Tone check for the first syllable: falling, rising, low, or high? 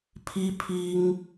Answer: high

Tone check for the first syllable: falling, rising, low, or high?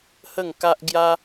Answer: falling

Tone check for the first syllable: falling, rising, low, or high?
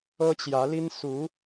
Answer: high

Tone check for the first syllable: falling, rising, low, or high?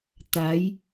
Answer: rising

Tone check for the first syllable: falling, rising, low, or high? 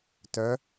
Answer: rising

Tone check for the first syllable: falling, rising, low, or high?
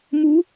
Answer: rising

